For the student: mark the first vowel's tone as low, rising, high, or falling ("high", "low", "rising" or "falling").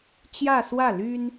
falling